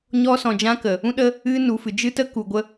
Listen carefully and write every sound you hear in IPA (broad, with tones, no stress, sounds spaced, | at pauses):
ɲ ɔ˧ s ɔ̃˨ d͡ʒ ã˧ k ə˨ | ũ˧ ɗ ə˧ | ɨ˧ n u˨ f ɨ˨ d͡ʒ ɨ˧ t ə˧ k u˨ ɡʷ ə˧